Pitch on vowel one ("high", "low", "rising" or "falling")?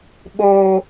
low